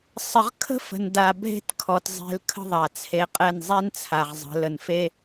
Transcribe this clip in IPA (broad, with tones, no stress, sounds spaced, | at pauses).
sˤ ə˧ ʁ kʰ ə̤˦ f ə̤˨ n d a˨ bʱ e̤˦ t kʰ ɔ˨ t zˤ e̤˧ l kʰ ə̤˦ ðˤ a˨ t͡sʰ e˨˦ qʼ ɛ˦˨ n zˤ ɛ˦ n t͡sʰ a˨ ʁ zˤ ə̤˨˦ l ə˧ n f e˦